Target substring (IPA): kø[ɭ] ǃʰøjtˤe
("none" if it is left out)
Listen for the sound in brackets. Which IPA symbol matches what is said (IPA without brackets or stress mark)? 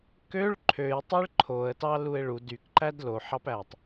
ɭ